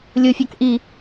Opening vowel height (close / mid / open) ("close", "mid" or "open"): close